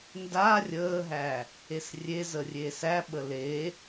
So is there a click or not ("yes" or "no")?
no